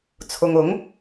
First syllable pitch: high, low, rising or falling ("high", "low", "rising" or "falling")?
low